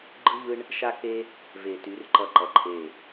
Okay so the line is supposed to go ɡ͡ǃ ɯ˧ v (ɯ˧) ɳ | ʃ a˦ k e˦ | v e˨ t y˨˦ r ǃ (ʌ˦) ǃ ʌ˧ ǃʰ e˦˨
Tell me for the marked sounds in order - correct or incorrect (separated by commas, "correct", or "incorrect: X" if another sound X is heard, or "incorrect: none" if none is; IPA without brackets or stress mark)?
correct, correct